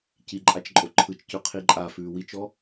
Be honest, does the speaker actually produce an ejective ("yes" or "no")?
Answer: yes